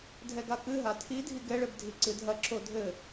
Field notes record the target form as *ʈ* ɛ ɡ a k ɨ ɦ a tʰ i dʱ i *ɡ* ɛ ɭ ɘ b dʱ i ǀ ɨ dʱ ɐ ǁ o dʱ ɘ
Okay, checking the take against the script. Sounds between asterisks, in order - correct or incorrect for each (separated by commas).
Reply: incorrect, correct